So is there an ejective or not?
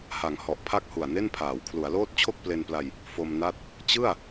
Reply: no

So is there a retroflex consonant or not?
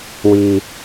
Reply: no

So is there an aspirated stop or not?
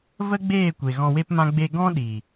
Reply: no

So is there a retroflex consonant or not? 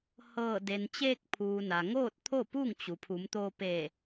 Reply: no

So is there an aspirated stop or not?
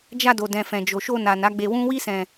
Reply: no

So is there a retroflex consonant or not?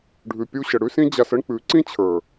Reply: yes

